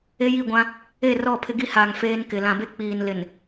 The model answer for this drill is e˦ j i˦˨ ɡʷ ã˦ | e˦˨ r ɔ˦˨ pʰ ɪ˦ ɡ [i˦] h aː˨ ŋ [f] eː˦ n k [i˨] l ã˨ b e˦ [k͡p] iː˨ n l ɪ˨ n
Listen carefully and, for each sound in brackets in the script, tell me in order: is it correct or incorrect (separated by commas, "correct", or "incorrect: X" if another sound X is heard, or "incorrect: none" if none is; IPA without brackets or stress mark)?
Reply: correct, correct, incorrect: ɪ˨, correct